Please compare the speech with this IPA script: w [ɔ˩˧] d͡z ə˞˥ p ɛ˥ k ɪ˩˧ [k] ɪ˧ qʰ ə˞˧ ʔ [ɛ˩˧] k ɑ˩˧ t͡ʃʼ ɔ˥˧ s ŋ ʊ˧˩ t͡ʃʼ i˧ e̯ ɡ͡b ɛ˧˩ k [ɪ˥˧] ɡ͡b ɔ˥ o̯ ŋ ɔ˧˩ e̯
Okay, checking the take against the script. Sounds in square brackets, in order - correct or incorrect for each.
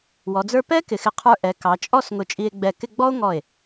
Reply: correct, incorrect: x, correct, correct

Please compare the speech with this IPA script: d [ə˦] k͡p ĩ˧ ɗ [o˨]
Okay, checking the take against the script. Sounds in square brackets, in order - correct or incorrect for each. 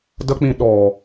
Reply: correct, incorrect: ɔ˨

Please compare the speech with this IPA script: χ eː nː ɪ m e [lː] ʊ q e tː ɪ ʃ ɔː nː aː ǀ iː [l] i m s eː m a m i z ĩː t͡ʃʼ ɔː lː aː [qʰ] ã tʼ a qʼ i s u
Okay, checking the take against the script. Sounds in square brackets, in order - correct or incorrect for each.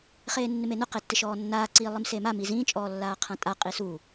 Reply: incorrect: n, incorrect: lˠ, correct

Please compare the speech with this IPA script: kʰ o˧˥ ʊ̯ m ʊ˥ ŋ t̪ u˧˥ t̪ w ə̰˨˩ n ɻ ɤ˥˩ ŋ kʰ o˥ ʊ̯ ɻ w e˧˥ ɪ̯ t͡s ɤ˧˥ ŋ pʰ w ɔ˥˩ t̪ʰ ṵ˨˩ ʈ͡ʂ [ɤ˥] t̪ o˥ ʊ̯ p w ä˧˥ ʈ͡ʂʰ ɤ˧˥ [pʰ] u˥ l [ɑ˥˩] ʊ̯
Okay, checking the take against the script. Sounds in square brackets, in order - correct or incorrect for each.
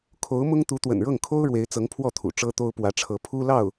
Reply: correct, correct, correct

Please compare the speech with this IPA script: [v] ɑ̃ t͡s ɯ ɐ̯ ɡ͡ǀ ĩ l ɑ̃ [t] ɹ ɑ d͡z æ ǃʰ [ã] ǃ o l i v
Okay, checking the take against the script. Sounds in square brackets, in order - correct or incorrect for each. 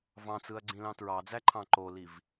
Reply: correct, correct, incorrect: ɑ̃

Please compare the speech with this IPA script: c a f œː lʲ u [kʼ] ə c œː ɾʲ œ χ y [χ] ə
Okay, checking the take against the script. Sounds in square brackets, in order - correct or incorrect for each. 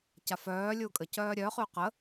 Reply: correct, incorrect: q

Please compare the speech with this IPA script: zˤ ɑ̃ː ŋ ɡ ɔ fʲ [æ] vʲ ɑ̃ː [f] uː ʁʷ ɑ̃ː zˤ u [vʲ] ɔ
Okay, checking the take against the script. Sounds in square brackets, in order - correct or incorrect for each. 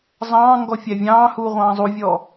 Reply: correct, incorrect: h, correct

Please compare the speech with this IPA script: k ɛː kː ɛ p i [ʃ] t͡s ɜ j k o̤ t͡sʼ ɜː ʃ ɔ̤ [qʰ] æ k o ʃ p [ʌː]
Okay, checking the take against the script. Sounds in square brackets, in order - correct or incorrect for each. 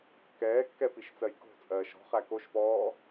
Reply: correct, incorrect: χ, incorrect: ɔː

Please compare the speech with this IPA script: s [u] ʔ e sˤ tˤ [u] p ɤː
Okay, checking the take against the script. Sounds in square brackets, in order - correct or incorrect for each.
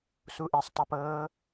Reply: correct, correct

